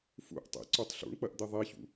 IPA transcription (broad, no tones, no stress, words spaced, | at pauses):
fṵʔ tˤḭǀutˤ ɬṵɳk͡pɐʔd̪i ðˤiçṵ